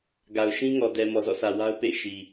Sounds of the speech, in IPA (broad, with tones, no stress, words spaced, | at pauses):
ɡa˨ʊ̯ʃĩ˦ ŋɔ˨dɛ˨ mɔ˨zɔ̰˦˨sʰä˨ wa˦ʊ̯pḛ˦˨ɪ̯ʃi˨